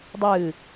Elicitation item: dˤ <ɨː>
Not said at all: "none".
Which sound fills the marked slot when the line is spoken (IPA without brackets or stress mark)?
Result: ɨː